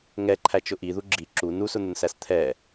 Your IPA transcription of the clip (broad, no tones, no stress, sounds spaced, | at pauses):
ŋ ɛ ǃʰ æ t͡ʃ ʊ ʔ i ð u ɡ͡ǁ i ǁ u n u s ʊ n̪ ʊ n s æ s t̪ʰ ɛ